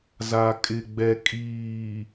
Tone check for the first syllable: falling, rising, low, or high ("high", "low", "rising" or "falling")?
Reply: low